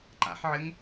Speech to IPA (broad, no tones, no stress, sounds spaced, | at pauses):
ǃ a̰ ħ ʕ ɘ ŋ